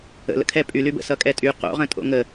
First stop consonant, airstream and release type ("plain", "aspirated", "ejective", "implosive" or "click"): aspirated